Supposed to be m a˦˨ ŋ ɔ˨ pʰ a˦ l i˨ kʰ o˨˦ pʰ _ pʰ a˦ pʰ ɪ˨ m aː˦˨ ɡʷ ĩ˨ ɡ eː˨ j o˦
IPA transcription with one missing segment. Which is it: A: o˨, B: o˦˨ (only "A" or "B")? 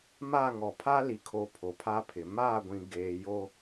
A